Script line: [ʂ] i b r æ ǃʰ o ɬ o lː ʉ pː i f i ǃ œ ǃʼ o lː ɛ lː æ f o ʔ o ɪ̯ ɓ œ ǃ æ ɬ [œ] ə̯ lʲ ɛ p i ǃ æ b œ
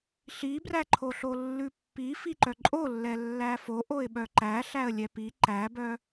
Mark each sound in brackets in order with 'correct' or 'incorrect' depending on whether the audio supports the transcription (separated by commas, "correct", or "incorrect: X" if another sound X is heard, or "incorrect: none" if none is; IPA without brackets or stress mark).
incorrect: ɬ, incorrect: æ